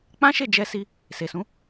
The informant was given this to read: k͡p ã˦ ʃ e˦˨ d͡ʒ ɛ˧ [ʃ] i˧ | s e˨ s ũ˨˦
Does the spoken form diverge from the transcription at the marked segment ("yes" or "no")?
yes